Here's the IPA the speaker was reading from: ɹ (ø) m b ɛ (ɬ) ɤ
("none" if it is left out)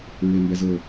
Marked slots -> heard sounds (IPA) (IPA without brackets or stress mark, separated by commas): e, z